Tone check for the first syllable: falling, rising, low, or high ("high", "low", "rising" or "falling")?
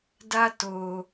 high